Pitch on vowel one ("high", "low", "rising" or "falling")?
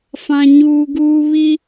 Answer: high